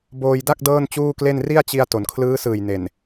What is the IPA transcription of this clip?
b oː˧ j d a˥˩ k̚ d ɤː˥˩ n t͡ɕ uː˥˩ k l e˥˩ n r i˥˩ a̯ t͡ɕ i˧ a̯ t o˩˦ n kʰ l ɯː˦˥ s ɯː˨˩ j n e˨˩ n

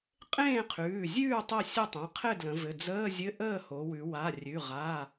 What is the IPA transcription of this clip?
qʼ ẽː˥˨ qʰ ʉː˩˧˩ zʲ ʉː˥˨ tˤ e˥˨ sʲ ɘ˥˨ tˤ ẽ˩˧˩ qʰ ɘ˥˨ d l ə̃˩˧ v ɘ˩˧˩ d͡z əː˧˥˧ zʲ ɘ˧˥˧ ʔ əː˥˨ h o˩˧ w ʉ˩˧ w a˩˧˩ rʲ ʉ˩˧˩ ʁ a˩˧˩

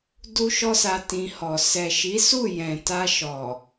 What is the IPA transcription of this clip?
d u˦ ʃ ɔ˦ s a˧ t ĩ˧ h ɔ˨ s ɛ˨ ʃ i˨˦ s u˦˨ j ɛ̃˨ t a˧ ʃ ɔ˨

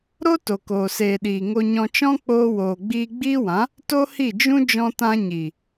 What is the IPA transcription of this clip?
ɾ o˦ t o˨ k oː˨ s eː˨ ɗ iː˨ ŋ o˧ ɲ ɔ̃˧ t͡ʃ ɔ̃˦ k͡p oː˧ w oː˨ ɡ͡b iː˧ ɡ͡b iː˦ w ã˨˦ | t o˦ h i˦˨ d͡ʒ ũ˦ d͡ʒ ɔ̃˧ t ã˧ ɲ i˨

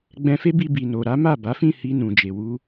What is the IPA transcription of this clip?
ɡ͡b ɛ̃˧ f e˦ b i˧ b i˨ n o˨ ɾ a˨˦ m a˦˨ b a˨˦ f ĩ˦˨ h i˧ n ũ˨ d͡ʒ e˨ w u˧

